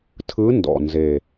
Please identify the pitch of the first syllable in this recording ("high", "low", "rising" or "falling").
rising